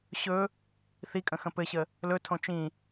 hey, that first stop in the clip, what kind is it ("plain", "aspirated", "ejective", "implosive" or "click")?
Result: ejective